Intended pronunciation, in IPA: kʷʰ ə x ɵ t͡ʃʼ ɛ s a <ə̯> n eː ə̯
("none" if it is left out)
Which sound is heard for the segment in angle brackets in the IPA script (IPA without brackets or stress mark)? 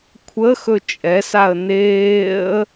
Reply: ə̯